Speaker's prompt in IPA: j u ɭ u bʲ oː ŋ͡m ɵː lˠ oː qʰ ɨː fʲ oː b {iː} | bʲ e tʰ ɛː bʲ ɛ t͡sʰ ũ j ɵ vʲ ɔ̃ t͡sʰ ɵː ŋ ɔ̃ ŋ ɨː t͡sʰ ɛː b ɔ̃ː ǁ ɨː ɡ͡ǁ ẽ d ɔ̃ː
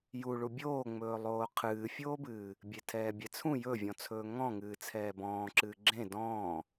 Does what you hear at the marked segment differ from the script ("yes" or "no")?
yes